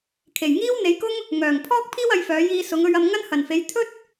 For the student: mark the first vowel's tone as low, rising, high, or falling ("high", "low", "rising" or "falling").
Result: low